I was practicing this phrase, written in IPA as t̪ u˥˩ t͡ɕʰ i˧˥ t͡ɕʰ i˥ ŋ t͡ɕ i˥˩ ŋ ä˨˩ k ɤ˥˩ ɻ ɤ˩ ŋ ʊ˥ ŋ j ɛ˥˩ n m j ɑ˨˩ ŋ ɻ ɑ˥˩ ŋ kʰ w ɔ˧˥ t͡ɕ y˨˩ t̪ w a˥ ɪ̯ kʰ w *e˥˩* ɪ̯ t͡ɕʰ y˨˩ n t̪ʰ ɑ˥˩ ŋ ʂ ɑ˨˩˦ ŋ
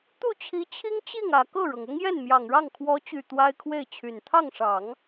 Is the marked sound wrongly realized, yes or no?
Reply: no